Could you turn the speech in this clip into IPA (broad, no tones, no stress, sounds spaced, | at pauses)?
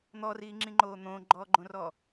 n̪ ɔ r iː ŋ͡ǁ ĩ ŋ͡ǃ oː n̪ õː ɡ͡ǃ ɔː ɡ͡ǃ õ r ɔː